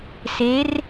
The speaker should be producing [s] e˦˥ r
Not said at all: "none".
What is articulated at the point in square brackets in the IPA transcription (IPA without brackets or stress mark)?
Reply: s